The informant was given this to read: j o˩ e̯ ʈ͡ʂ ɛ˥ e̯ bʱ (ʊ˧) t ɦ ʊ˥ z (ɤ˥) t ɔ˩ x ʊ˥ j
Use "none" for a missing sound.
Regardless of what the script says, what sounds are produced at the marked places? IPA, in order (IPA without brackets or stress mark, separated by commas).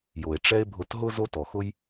ʊ˧, o˥